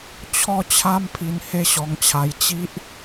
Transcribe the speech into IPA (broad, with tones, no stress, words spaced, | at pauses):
t͡ɕʰɔ˥˧t͡ɕʰa˦mpʰi˧n he˦ɕɔ˧ŋt͡ɕʰa˧j t͡ɕi˦ʔ